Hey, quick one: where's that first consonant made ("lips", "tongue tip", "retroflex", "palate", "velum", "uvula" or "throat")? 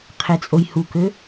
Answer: uvula